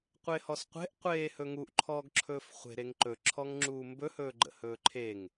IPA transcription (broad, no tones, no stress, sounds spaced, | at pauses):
qʷ e h ɔ s qʷ e̤ ʔ qʷ eː h ɵ ŋ u ʔ ǃʰ ɔː ɡ ǁʰ ɵː f χʷ e̤ ɾ e ŋ ǃ ɵ ǁʰ ɔ ŋ ŋ͡ǁ uː m b ɵ h ɵː ɡ͡ǃ ə̰ h ɵː ǃʰ e ŋ